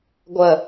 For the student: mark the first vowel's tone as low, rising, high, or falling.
falling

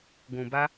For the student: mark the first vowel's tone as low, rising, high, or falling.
low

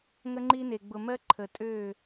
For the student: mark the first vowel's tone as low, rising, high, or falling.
high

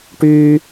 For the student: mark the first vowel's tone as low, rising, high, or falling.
high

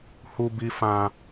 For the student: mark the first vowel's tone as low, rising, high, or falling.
high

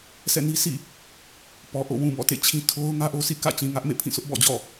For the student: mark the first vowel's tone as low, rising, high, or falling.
falling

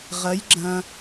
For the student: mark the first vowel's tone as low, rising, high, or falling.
rising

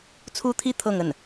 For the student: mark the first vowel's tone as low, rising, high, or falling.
high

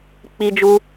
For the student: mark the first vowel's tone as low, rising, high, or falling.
high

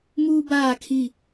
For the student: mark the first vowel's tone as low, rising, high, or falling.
high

